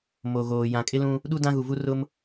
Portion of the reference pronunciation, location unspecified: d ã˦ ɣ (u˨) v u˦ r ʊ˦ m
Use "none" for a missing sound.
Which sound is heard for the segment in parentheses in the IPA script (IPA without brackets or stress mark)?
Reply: u˨